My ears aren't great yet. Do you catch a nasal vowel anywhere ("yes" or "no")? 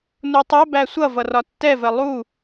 no